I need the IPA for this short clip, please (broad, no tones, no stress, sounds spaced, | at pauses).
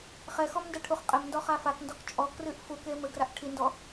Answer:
χ ɛ x ɔ m n d ɛ ʈʰ u χ qʼ ɘ m n d ɔ χ a f a k n d ɔ k t͡ʃʼ ɔ k r ɨ ʔ f u k e m ɘ ɡ r a ʔ ʈʰ i n d ɔ